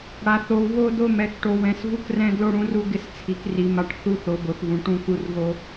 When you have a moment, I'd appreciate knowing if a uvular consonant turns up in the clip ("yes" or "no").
no